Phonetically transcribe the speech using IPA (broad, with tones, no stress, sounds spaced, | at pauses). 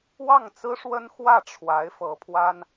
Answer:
w ɑ˥˩ ŋ t͡s ɹ̩˥ ʂ w ə˥ n x w ä˥˩ ʈ͡ʂʰ w a˧˥ ɪ̯ f ɤ˧˥ pʰ w a˥ n